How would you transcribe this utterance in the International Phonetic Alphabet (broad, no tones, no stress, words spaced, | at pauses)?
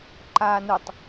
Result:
ǃaːnʊtˤ